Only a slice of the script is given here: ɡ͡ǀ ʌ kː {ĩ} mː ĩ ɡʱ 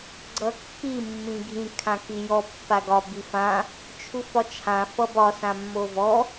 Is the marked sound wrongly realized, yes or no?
yes